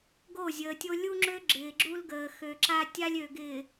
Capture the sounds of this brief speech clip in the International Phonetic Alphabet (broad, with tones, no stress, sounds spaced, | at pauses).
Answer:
ɡ o˦˨ zʲ əː˨ tʲ o˦ lʲ u˦ ŋ͡ǁ ø˦ ɡ͡ǁ ɪː˨ ɡ͡ǁ u˦ l ɡ əː˨ x ø˨ ǁ a˦ tʲ a˦ lʲ ø˨ ɡ ɪː˨